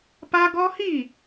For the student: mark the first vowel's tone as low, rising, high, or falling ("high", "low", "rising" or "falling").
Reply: high